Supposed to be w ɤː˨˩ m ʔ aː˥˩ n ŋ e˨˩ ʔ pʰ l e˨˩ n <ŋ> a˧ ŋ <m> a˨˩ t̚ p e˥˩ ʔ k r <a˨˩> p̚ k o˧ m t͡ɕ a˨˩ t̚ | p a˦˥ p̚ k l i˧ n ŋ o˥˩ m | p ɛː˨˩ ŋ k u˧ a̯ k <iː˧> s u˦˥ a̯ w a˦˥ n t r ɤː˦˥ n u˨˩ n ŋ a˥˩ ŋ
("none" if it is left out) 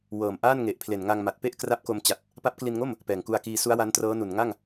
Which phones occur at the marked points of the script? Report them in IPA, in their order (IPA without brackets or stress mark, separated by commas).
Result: ŋ, m, a˦˥, iː˧